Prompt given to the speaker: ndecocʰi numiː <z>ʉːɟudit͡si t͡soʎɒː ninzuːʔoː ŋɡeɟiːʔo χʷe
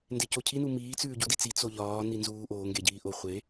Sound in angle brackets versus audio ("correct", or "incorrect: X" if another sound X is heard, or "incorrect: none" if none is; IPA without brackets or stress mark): incorrect: t͡s